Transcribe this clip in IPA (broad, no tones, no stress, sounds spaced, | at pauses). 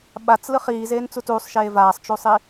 ɓ a t͡s l ɯ χ iː z eː n t͡s u t uː sˤ ʃ eː v aː sˤ t͡ʃ u sˤ i